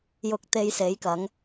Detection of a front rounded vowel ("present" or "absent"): absent